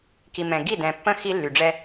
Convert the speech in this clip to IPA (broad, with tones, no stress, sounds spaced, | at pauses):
k i˨ m ɛ̃˨ ɡ i˦˨ d ɛ̃˨ pː ə̃˦ x i˦ lː y˨ ɖ͡ʐ ɛ˦